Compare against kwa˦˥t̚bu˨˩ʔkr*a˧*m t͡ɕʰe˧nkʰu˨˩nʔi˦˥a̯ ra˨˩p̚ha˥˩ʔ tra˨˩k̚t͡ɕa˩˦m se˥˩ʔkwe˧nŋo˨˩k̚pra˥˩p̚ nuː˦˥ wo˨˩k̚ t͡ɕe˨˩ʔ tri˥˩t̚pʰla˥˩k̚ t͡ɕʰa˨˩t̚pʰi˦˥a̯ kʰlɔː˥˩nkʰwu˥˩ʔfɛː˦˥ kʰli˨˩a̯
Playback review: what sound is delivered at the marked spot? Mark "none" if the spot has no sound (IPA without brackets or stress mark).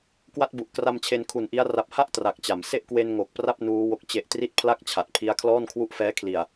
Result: a˧